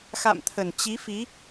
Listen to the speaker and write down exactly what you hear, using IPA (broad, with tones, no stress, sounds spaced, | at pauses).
x a̰˧˨ m t̪ʰ ə˨˩ n t͡ɕ i˨˦ f i˨˦